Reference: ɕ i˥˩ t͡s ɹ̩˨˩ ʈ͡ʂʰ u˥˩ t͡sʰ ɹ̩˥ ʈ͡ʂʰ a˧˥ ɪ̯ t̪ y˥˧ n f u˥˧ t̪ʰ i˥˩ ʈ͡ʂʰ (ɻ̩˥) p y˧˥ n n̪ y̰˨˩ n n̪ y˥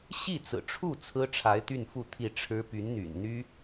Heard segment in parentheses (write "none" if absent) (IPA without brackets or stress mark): ɻ̩˥